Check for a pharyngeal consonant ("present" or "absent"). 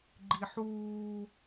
present